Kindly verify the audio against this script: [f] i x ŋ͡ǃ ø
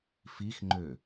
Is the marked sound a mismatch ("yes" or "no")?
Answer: no